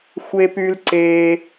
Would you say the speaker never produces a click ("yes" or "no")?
no